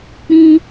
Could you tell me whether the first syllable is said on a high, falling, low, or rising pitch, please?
high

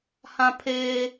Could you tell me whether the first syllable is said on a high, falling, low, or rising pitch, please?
high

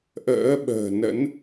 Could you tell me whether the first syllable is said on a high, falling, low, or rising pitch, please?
rising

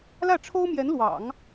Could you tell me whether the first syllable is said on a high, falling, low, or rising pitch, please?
falling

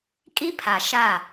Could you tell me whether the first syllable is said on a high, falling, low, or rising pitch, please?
high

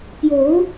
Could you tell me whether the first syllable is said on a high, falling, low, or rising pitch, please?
rising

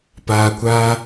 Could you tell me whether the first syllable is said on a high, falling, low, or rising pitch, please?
low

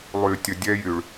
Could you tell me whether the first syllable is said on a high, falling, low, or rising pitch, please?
low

